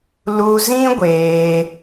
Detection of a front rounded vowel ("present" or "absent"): absent